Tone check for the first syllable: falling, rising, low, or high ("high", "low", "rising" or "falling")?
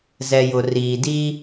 low